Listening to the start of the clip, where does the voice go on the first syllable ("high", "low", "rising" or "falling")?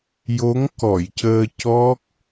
rising